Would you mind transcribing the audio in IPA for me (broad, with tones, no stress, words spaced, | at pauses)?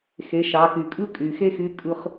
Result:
xe˩˧ʃɑ˩˧ky˩ kʼɯ˥kʼy˩xe˥xy˧˥ kʼɯ˧χ